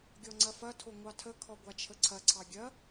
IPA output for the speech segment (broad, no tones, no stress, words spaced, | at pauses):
ɡʲɔŋ͡ǀɐfɐtʰo ŋʷɑtʰəkʰɔ ɡʷat͡ʃʰəǀʰɐǀʰɑ ɡʲɐ